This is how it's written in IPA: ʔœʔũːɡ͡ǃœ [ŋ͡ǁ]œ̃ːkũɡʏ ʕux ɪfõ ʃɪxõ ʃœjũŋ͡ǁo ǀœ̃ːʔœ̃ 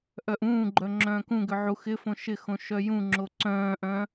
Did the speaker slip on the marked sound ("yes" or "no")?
no